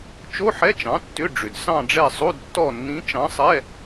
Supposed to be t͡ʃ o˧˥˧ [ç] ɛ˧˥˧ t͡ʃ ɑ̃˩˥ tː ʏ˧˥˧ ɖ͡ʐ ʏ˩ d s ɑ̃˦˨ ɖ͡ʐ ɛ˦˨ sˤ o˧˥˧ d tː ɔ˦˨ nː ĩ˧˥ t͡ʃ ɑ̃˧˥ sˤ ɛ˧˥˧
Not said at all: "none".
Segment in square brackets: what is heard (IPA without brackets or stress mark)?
ħ